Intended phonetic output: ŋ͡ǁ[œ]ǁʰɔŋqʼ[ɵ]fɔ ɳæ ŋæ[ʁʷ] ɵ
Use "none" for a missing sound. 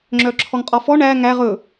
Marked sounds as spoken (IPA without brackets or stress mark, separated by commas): œ, ɔ, ʁ